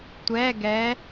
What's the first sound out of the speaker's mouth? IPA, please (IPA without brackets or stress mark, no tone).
tʷ